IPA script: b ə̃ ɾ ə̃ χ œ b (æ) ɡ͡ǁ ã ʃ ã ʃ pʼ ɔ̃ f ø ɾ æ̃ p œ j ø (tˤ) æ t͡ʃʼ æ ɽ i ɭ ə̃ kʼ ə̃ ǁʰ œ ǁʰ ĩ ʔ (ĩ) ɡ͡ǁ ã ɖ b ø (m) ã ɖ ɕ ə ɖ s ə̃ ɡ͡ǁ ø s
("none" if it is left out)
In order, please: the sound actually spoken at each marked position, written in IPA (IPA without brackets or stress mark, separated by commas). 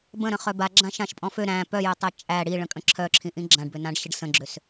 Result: a, tˤ, ĩ, n